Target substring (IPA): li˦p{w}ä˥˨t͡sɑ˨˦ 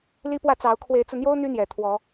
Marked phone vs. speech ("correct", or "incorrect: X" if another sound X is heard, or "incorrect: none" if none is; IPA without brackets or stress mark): correct